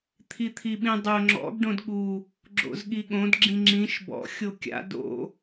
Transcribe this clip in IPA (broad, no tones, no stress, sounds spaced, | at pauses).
t̪ʰ i t̪ʰ i ɓ ĩ dˤ o ŋ͡ǁ ɔ̰ ɡ ɖ õ d ɠ u | ɡ͡ǁ o̰ z ɠ i ɠ õ d ɡ͡ǁ ĩ ŋ͡ǁ ĩ ʃ b ɔ̰ xʲ o kʲ a̰ d o̰